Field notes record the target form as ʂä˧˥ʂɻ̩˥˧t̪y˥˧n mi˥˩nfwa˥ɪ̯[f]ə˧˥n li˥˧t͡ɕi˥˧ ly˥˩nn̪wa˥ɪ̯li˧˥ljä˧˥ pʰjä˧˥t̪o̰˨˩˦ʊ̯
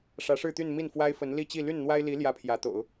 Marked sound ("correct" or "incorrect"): correct